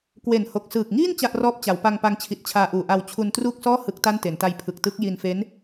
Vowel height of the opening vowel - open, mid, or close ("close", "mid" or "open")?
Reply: mid